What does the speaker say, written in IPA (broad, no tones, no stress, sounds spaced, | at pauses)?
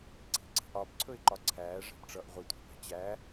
ǀ i̤ ǀ e̤ ʔ ɒ b ǀʰ ɵ ɪ̯ ǃ ɒ ǀʰ æː ʐ æ̤ b ʈ͡ʂ ʌ ʔ ʁʷ i tʷ æ̤ b æ̤ t͡ɕ æ